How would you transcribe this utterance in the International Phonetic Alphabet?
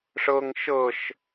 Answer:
ʂɤŋ ʃɤʃ

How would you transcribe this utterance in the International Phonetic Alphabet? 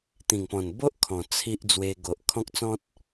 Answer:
t̪ĩ˨˩ŋpɔ̃˨˩nbo˦ʔ kʰɔ̃˨˩ t͡sʰi˦ʔ d͡zwe˧ɡo˨ʔ kʰɔ̃˦k̚t͡sɔ̃˦t̚

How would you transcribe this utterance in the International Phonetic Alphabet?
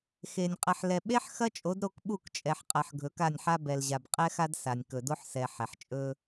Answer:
xe˨nʲ qʼɐ˨ħlɛ˨ɓe˦ħ xɐ˦t͡ʃʼo˨˦dɾo˦˨k ɓu˦˨kt͡ʃʼɛ˨ħqʼɐ˨ħ ɡʱɵ˨˦ka˦˨nʲħa˦ bɛ˨lʑa˨b qʼɛ˦xa˦d sa˨nʲ kɵ˨do˦ħsɛ˨ħɛ˨ħ t͡ʃʼɵ˦

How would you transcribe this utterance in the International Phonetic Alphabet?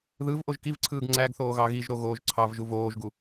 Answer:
ðɯv ʔoʒkivǀʰɯːɡ ŋ͡ǀæɡθoː ɣɑɣiʒɾo ɣoːʒǀʰɑvʒu voːʒɡu

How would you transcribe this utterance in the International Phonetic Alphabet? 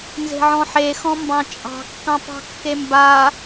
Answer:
nze̤ʕɔ̃ħexɔ̃ mbɑ̃t͡ʃʼɑ̤ kːɑ̃pɑ̤kːemba

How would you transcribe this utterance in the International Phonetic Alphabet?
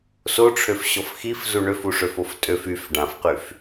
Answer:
soʈ͡ʂʰøf ɕɔfxif zuɳøfuʂøf oftʼøf yf ɖãfqyf

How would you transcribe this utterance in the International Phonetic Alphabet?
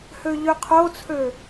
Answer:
høʎøqʰot͡sʰø

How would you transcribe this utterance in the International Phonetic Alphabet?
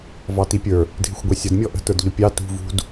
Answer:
vɑtipʲə˞ | dʱɪxʷɡʷɛsʲʌd mʲɔʔə̤ tə˞dʎʊpʲɑ tṳ vṳd

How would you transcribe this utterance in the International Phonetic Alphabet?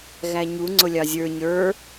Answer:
ɣæɲu ŋ͡ǀʊlʲɑzʲə˞ ɲə˞

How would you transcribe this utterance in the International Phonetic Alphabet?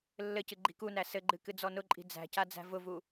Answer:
lːɘcɨ ɡ͡ǃi̤kunæ sɘɡ͡ǃɨ kɨd͡zɔnʊǃʼi̤ d͡zæ̤ca d͡zæ̤vʊvu

